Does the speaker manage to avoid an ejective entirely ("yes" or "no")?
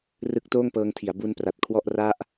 yes